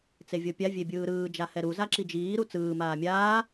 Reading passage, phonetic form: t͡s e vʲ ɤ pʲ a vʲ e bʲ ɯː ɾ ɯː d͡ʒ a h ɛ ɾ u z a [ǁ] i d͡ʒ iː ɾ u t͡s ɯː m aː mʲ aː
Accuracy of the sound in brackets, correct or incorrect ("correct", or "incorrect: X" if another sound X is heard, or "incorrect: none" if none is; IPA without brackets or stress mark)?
correct